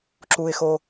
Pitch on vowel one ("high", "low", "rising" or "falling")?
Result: low